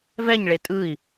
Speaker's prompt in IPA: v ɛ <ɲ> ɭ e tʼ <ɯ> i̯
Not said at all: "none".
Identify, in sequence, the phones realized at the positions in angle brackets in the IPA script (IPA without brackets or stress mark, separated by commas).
ɲ, ɯ